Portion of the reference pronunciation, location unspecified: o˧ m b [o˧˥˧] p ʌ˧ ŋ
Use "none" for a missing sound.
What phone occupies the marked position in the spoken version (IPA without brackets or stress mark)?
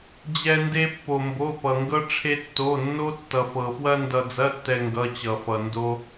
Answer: o˧˥˧